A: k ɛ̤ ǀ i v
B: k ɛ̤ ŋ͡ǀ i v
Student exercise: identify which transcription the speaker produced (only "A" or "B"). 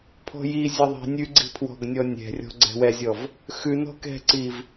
A